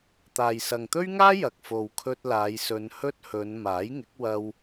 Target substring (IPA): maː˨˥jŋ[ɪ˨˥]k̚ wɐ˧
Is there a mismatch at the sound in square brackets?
no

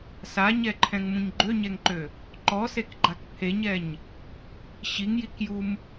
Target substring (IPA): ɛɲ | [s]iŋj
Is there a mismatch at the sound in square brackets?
yes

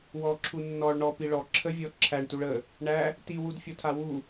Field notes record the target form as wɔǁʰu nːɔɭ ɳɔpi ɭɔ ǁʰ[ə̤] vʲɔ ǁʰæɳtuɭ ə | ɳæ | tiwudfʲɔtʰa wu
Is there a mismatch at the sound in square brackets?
yes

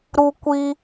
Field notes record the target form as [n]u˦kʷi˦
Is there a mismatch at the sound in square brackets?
yes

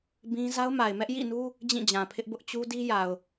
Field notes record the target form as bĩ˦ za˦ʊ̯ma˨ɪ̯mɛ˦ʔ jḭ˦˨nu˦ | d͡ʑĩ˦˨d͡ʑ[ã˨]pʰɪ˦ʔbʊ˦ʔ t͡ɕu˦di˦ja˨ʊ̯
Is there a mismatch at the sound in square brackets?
no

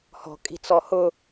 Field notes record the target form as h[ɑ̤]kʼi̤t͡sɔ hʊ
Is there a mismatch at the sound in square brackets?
yes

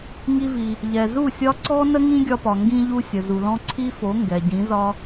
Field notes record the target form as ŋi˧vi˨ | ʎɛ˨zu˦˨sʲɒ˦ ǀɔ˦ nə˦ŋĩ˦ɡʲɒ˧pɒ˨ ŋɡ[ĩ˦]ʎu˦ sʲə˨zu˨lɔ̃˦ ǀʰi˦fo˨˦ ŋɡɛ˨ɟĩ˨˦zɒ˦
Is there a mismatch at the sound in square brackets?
no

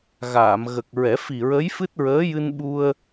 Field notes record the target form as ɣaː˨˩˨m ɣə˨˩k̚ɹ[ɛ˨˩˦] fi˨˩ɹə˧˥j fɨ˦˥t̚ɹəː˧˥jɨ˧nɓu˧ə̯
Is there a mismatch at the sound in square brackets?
no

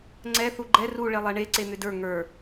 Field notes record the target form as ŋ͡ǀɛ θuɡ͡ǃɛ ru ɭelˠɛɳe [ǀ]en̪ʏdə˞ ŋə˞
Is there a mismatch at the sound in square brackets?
no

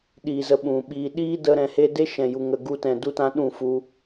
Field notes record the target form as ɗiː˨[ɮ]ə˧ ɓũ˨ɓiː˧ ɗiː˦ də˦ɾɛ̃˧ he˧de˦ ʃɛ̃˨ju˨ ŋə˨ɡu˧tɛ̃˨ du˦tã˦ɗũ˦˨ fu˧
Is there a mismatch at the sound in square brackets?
yes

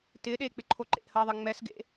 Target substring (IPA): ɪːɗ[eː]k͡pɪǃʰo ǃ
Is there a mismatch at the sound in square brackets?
no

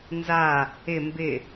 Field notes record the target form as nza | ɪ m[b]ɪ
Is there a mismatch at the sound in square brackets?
no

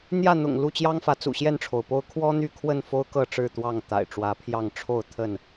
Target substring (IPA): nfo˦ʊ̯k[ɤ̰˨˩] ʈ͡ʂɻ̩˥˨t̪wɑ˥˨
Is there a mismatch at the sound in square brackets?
yes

